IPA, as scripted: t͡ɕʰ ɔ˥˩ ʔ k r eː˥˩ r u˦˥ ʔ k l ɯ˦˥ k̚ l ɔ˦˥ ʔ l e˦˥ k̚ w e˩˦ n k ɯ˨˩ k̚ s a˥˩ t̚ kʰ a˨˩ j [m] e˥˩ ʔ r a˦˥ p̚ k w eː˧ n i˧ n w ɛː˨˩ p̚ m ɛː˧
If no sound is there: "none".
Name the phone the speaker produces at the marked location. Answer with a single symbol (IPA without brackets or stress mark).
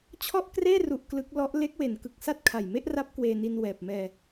m